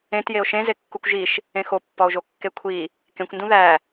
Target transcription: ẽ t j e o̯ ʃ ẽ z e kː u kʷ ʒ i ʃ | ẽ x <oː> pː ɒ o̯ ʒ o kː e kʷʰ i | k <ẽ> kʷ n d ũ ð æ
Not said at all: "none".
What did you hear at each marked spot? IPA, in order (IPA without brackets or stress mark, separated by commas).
o, ẽ